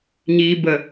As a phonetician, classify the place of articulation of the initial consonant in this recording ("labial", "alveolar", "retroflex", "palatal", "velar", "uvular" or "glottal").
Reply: palatal